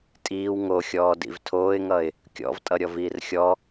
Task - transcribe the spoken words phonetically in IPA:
tʼ iː w ŋ o xʲ ɔː d ḭ v tʰ oː ɪ̯ ŋ ʌ ɪ̯ | kʲ ɔ̰ v tʼ ʌ ɾʲ ɔ v iː r xʲ ɔ

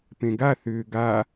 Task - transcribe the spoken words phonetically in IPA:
p ẽ ɡ a θ ʏː ɡ a

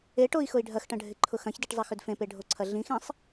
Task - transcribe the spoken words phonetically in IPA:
e ʈ o i̯ x ʊ i̯ ɖʱ ɐ x ʈ ɐ̃ ɖʱ ɪ ǃʰ ʊ x ɐ̃ ç d e ʈ zˤ ɐ x ʏ d f ẽ p e ɖʱ o ǀʰ ɐ ɮ ĩ x ẽ sˤ

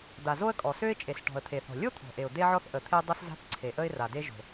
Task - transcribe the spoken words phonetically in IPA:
d̪ a˩ z o˥ ə̯ kʼ ɔ˩ s ø˥ ɪ̯ t͡ʃʼ e˩ s ʈ ɔ̤˩ ə̯ t̪ʰ e˩ θ ɔ̤˩ lʲ o˥ t̪ʰ ɔ̤˩ ʔ e˩ ʊ̯ d̪ e˥ ʕ ɔ˥ θ ʔ ə˩ t̪ʰ e˥ dˤ ʊ˥ s z a̤˥ θ ǀʰ e˩ ʔ ə˥ ɪ̯ r a˩ d e˥ ʒ o̤˩

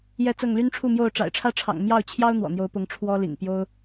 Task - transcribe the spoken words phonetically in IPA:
j ɛ˥˨ t͡s ɤ˥˨ ŋ l y˦ n ʈ͡ʂʰ u˥˨ m j o˥˨ ʊ̯ ʈ͡ʂ a̰˨˩ ɪ̯ ʈ͡ʂʰ ä˦ ʈ͡ʂʰ ɑ̰˨˩ ŋ m j ɑ˥˨ ʊ̯ t͡ɕʰ j ɑ˦ ʊ̯ n̪ w ɔ̰˨˩ n̪ j o˨˦ ʊ̯ p ʊ˨˦ ŋ ʈ͡ʂʰ w ɔ˦ l ḭ˨˩ ŋ p j o˦ ʊ̯

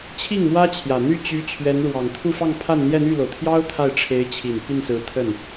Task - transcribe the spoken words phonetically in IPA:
t͡ɕʰ i˥˩ ŋ m w ä˥ t͡ɕʰ j ä˨˩ n̪ y˥˩ t͡ɕ y˧˥ t͡ɕʰ ɥ ɛ˧˥ n ɻ w ɑ˨˩ ŋ t̪ʰ u˥˧ f ɑ˥˧ ŋ pʰ a˥˧ n n̪ j ɛ˥˧ n̪ y˥˩ l o˩ ʊ̯ t̪ʰ j ɑ˥ ʊ̯ t̪ʰ a˥˩ ɪ̯ ʈ͡ʂʰ e˧˥ ɪ̯ t͡ɕʰ i˨˩ n p i˥˩ n s ɹ̩˧˥ t̪ʰ ə˥˩ n

